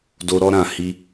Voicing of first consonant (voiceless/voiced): voiced